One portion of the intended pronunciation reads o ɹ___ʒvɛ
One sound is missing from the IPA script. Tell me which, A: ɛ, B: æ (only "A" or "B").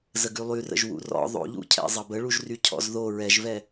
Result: A